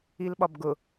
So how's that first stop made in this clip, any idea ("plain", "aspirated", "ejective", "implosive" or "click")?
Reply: implosive